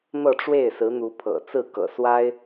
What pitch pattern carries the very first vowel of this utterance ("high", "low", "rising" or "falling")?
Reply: falling